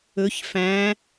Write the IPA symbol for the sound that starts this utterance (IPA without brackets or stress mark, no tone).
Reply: ɵ